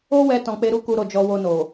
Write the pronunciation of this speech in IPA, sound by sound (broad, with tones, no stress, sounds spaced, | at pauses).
o˦ w ɛ˧ t ɔ̃˨ k͡p e˧ ɾ u˦ k u˧ ɾ o˨ d͡ʒ ɔ˧ w o˧ n o˨